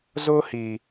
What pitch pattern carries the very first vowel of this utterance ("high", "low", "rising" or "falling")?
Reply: high